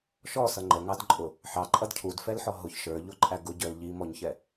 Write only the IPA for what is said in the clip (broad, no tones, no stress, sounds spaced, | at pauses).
ʃ ɔ s ʌ ŋ͡ǃ ə ŋ ɑ d ǃʼ ʊ | ħ ɑ ǃʼ ʌ d cʰ u d f ɛ l ħ ɔ ɦ ʊ ç ʃ ə˞ ʎ ʊ ǃʼ æ ɡ ʊ ɟ ə˞ l ʎ i m ɔ ɲ ç ɛ